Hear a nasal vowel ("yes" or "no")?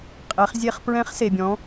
yes